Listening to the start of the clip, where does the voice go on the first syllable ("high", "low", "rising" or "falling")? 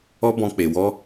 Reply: high